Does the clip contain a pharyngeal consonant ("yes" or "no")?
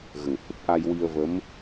no